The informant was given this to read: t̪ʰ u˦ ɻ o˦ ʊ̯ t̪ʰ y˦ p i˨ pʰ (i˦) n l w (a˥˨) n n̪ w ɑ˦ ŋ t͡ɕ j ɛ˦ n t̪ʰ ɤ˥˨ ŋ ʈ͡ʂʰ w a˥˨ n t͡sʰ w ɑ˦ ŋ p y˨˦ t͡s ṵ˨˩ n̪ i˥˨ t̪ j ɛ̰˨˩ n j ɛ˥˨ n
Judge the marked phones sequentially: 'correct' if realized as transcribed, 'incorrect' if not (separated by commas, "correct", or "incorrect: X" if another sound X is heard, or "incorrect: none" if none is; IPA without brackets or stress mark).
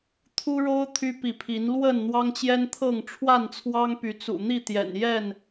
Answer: incorrect: i˨˦, incorrect: ə˥˨